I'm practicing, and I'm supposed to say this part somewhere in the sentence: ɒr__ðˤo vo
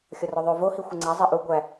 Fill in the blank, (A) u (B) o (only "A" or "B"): B